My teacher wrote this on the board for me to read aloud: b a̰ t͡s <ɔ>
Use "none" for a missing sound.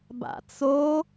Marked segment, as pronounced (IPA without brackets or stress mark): o